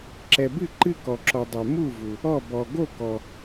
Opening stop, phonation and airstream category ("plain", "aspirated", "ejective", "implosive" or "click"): click